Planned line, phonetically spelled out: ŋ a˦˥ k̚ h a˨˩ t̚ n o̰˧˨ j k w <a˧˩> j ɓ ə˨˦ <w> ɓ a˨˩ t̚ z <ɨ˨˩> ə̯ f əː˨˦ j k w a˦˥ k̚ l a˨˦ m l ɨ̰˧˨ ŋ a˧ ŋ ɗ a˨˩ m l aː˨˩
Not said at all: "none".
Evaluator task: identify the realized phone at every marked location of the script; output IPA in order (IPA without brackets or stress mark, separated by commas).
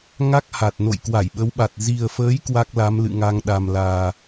a˧˩, w, i˨˩